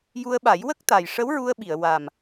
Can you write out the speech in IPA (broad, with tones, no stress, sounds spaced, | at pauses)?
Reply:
j u˧ ə̯ ɓ a˨˩˦ j w ə˦˥ k̚ t̪ a˨˩ j ʂ ə˧˥ w ɹ u˧ ə̯ ɓ i˨˩˨ ə̯ w a˨˩ m